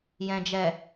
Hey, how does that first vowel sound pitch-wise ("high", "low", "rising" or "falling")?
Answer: low